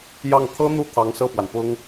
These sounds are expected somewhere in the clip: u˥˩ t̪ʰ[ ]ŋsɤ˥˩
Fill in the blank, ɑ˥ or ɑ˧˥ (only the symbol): ɑ˧˥